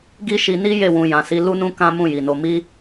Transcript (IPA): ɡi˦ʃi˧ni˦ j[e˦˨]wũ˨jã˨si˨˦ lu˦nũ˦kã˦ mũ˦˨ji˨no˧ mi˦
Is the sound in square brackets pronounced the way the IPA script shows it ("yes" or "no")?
yes